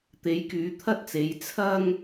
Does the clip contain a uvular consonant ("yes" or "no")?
no